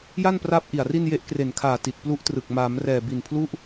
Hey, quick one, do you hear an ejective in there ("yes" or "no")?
no